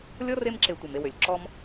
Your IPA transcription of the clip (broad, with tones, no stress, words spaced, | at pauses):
lʲɔ˥r e˦mǁe˨ tʷe˩me˨wø˩lʲ ǁɔ˦m